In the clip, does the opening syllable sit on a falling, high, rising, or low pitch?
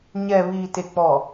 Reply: low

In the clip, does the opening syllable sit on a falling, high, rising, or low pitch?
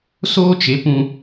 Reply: high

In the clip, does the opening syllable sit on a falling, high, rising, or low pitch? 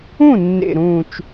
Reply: falling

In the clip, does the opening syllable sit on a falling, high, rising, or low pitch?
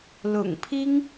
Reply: low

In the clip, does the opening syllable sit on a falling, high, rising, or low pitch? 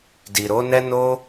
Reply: low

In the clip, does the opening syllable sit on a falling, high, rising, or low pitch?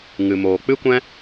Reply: low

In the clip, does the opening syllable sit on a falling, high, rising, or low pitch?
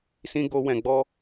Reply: high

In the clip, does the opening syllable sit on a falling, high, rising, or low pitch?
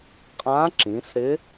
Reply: rising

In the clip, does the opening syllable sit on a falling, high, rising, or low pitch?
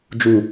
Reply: low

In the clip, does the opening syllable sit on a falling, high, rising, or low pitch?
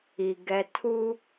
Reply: low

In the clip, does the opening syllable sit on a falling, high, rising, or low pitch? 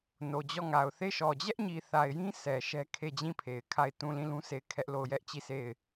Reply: low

